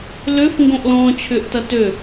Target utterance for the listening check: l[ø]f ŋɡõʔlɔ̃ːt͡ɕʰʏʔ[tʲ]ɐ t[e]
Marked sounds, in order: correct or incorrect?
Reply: correct, incorrect, incorrect

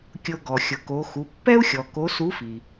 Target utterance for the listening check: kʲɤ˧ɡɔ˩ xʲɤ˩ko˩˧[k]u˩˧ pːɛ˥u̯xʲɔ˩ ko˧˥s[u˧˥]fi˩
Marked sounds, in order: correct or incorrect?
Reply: incorrect, correct

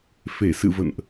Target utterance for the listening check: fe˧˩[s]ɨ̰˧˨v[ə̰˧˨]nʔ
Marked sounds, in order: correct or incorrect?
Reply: correct, correct

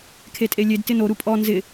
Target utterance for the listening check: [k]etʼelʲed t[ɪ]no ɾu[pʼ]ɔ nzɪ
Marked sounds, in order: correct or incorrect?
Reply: incorrect, correct, correct

